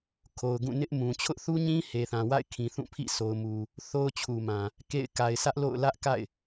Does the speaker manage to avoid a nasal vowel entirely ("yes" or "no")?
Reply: no